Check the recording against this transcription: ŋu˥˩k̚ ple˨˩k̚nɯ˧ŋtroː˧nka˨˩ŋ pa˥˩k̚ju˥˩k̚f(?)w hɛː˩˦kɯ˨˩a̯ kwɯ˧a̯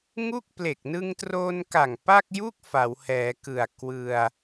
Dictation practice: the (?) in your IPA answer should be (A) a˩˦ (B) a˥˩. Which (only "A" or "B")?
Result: A